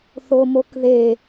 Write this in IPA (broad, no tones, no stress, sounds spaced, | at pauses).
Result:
θ o m o k ð e